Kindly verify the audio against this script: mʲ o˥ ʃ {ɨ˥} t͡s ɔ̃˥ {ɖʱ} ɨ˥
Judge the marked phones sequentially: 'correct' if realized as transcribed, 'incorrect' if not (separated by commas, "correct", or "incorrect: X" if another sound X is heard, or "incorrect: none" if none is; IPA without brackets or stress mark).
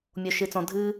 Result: correct, incorrect: dʱ